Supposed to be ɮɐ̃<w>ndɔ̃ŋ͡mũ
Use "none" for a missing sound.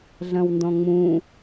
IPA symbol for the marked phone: w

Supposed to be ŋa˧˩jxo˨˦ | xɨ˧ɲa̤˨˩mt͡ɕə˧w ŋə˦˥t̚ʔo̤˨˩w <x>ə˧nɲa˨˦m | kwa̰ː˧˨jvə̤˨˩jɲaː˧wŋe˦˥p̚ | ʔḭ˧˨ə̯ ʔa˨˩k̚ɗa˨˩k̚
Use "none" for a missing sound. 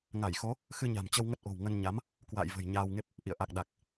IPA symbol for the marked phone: ŋ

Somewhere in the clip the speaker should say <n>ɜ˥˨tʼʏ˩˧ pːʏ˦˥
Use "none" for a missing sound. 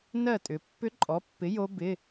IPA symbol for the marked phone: n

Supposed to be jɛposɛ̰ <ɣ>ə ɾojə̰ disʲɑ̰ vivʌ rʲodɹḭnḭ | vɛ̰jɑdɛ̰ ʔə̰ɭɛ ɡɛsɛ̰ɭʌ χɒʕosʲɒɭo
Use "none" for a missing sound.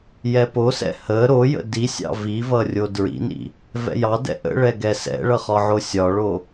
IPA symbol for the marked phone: h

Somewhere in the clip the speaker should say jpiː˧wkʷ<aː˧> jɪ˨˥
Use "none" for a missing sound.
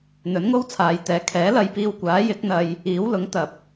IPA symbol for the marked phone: aː˨˥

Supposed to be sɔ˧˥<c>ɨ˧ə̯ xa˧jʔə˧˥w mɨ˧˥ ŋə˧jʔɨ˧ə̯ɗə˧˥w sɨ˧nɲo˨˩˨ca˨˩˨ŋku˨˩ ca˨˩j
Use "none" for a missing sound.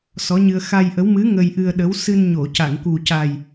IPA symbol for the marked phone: ɲ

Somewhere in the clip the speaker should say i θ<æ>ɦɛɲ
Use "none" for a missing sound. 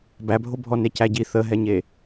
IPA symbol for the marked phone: ə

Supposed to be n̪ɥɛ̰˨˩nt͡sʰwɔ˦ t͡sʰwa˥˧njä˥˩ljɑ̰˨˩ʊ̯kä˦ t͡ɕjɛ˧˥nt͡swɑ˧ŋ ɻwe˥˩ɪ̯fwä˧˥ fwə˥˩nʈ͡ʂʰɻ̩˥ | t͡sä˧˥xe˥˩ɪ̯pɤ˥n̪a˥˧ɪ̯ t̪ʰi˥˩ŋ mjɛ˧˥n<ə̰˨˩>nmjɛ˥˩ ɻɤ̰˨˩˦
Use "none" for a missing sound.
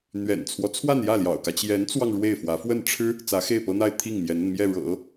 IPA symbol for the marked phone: ə˥˧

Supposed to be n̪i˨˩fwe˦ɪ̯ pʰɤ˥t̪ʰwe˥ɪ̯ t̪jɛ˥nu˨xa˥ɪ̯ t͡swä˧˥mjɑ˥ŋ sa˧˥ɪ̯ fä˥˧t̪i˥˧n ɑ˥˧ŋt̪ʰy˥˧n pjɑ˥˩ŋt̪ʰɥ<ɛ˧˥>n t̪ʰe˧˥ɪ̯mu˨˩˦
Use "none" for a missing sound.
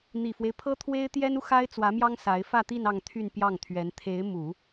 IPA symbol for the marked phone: ɛ˧˥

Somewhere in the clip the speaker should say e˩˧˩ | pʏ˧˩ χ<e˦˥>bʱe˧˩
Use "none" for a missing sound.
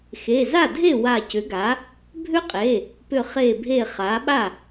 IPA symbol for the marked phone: e˧˩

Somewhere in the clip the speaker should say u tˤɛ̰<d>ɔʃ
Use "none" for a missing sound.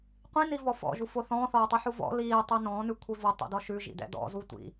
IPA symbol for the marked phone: d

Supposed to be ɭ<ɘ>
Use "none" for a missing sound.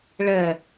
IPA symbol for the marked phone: ɛ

